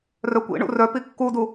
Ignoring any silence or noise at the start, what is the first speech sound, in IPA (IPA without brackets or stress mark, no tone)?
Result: r